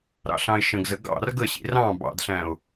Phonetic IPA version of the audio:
ɾ ɑ̰ ɬ ɑ̃ ɪ̯ ʃ ə̃ ɡ z ə ɡ ɑ̰ r ɡ ə ɕ ḭ r ɑ̃ b ɑ̰ d ɬ æ̃ ʊ̯

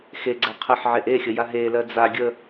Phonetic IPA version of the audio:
x e ɡ͡ǀ æ qʰ ə ħ ʕ e ʔ e xʲ ə j a ɦ e l ɜ d͡z a ɡʲ ə

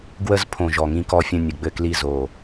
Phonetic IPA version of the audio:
ɡ w ə˦˨ z pʰ õ˨˩ ʒ ɔ˨˩ ŋ ĩ˦˨ k ɔ˦˨ fʲ ə̃˦˨ nʲ ə˨˩ ɡ͡b ɘ˦˨ k l i˦˨ z o˨˩

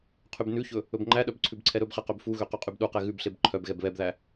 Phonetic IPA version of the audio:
qʰ y b n ʉ ç ɵ | ɵ b ŋ͡ǃ æ ɗ œ b ǀʰ ʉ b ǀʰ ɛ ɾ ɵ b χ e q ø b f u ɣ ø q y qʼ y b ɗ u q ɛ ɣ ʉ b ɬ e b ǃʰ œ b ɣ ɛ b β ɛ b ð æ

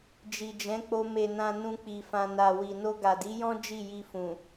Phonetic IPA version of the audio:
d͡ʒ i˨ d͡ʒ ɛ̃˨˦ k͡p o˧ m e˨ n ã˨ n ũ˧ k͡p i˨ f ã˨ n a˨ w i˨ n o˧ ɡ a˨ d i˨˦ j ɔ̃˦ d͡ʒ i˦˨ j i˧ f ũ˨

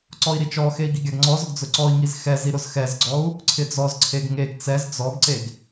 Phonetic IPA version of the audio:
ǀ ɔ i̯ ɾ i t͡ʃ ɔ x e i̯ ɡ i ɡʲ a ɡ ŋ͡ǀ ɔ z ʊ ɡ d͡z ʊ ǀ ɔ i̯ ŋ i z x ɛ z i ɾ ʊ z x ɛ z ɡ͡ǀ ɔ u̯ | ǀʰ ɪ d͡z ɔ z ǀʰ e ɡ ŋ e ɡ t͡s ɛ z d͡z ɔ ɡ ǀ e ɡ

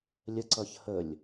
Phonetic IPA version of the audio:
lʲ ə ǀ ʌ ç h ə lʲ

